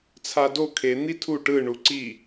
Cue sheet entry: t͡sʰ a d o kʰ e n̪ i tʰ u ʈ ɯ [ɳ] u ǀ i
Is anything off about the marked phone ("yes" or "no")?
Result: no